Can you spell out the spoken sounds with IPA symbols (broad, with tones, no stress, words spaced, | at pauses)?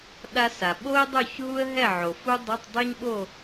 ɗa˥sa˩ ɓo˥ɪ̯dˤo˥˨ç ɦu˥ə̯ɦɛ˥˨ ʕo˩fu˥ dˤɛ˧˥˧tˤdˤi˥ɲɓo˥˨